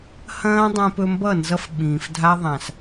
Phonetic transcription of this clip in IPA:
hɐ̃ː˦dˤẽ˧pɵ˧mbʌ˦˨ nzʌ˦fɓĩː˨f dʱa˦ðˤã˨s

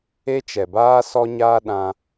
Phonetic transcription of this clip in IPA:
e˦t͡ʃɛ˨baː˦ sɔ˦ɲaː˦ ɗã˧

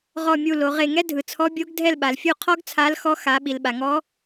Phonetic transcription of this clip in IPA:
ʁɔ˦˨mʲu˦˨lo˩˧ʁe˦˨ ŋɛ˥dʱɯ˩t͡sʰɔ˧˥ bʲo˧˥ɡ dʱɛ˦˨lɓa˩lfʲu˦˨qʰɔ˥ɡ t͡sʰa˧˥lxɔ˧˥ xa˩˧ ɓi˩lɓa˩ŋɔ˧˥

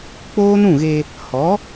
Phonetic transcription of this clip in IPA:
k͡poː˦nũ˦˨ɣe˧ | hɔ˨˦

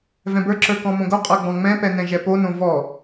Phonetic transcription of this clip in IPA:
vɛ̃bə˞ǁə˞ kɔ̃mõɡoqʼə˞ ɡ͡bɔ̃ŋ͡mɛ̃pɛ nɛ̃ʒɛponõ vɔ

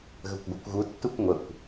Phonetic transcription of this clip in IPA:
ɣəkʷɡʷœkʷɣutːukʷ ŋʷəkʷ

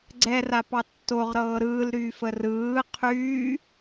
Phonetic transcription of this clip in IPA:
ɡ͡ǀɛrapɑ tːoʁɾɤː ɾɯːlɾyːf ərɯː qʰyː

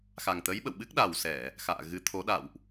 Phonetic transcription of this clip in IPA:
xa˨˩ŋt̪ə˨˦jɓə̰˧˨wɓɨ˦˥k̚ ɗa˨˩wsɛ˧˩˨ | xa̰ː˧˨ɣɨ˨˦t̪ʰo˨˦ ɗa̰˧˨wʔ

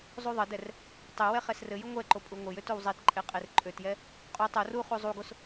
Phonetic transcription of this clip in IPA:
zˤuðˤədɛr | tˤewɛ χɛsrɘjə ŋʷɛǃo pʼuŋʷɘjøt owzˤetǃʼe qʼerǃʼøtjɛ | qʼotˤ or u χuzˤuɡos

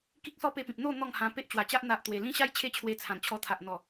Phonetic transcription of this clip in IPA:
ki˦k̚sɔ˦pe˧pĩ˨p̚ n̪o˥˧ n̪ɔ˥˧ŋhã˧ pe˦ʔt͡ɕwa˨˩t͡ɕa˦ʔ n̪a˨ʔ t̪we˨˩lĩ˦ɕa˦j t͡ɕʰe˥˧t͡ɕʰwe˧t͡sʰã˨˩n t͡ɕʰɔ˧t̪ʰa˨ʔn̪ɔ˨˩

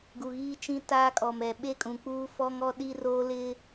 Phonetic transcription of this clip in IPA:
ɡu˨ɣiː˦t͡ʃĩ˦ taː˦kʼɔ˨mɛ˨ ɓe˦kʼũ˨k͡puː˦ fɔ˦ŋɔ˦ ɗi˦roː˦lɪ˦

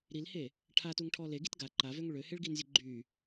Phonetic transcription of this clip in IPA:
ɾilhe | ʈʰatuŋʈʰɔ leɡit ɡa ǃavøŋ ɭøheɭɡinzʲə ɡ͡ǃy

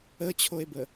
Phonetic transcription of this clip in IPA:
ət͡ɕʰoe̯bə

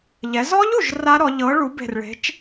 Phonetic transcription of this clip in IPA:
ʎɛ˩˧zɔ˦˥ʎu˧˩ʒ ra˦˥ɾɔ˩˧ʎɤ˨˥ ɭu˨˥be̤˧˩rɭe̤˨˥t͡ʃ

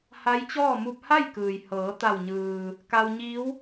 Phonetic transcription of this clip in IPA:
ha˧˥jt͡ɕɔː˥˨ mu˧p̚ha˥˨j kɯː˩jhɤː˩˧ t̪a˧˩wɲɯː˩ | ka˧wɲiː˧˥w

